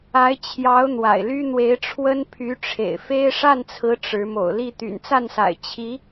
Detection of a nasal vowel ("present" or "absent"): absent